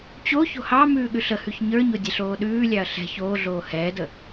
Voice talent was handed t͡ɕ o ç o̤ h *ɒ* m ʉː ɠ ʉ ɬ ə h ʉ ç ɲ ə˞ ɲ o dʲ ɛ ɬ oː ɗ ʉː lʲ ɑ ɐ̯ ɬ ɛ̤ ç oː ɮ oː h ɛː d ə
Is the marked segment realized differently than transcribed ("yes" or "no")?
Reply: yes